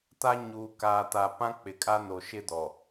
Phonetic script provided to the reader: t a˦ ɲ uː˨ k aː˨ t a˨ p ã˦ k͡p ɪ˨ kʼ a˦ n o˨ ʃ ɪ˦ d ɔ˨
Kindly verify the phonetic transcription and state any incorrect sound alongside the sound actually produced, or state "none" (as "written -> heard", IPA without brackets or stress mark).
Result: none